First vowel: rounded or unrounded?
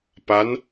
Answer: unrounded